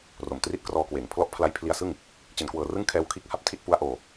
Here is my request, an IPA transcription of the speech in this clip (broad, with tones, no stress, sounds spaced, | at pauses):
r o˨˩ m t r i˦˥ t̚ k r ɔː˧ k w eː˩˦ ŋ pʰ l ɔ˦˥ ʔ pʰ l a˦˥ j pʰ l i˧ a̯ s ɯ˥˩ ŋ | t͡ɕ e˩˦ n k w ɤː˨˩ r ɯ˦˥ ŋ kʰ ɛː˦˥ w kʰ iː˦˥ k̚ h a˦˥ p̚ tʰ i˥˩ t̚ p u˦˥ a̯ ʔ oː˧